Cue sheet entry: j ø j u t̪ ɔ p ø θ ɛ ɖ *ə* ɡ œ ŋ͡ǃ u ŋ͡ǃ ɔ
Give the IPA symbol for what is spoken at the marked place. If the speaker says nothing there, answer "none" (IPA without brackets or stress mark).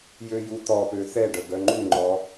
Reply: ə